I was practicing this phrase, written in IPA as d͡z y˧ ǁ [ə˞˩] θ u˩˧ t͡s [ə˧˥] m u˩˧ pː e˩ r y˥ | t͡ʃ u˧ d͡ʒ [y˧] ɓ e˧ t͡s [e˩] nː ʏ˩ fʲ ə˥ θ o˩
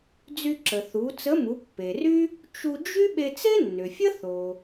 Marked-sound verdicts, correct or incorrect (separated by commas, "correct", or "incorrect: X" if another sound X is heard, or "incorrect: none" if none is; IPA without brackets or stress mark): incorrect: ə˩, correct, incorrect: y˥, incorrect: e˥